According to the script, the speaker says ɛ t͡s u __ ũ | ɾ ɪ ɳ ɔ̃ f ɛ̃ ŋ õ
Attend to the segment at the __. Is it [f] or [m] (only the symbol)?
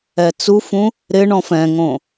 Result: f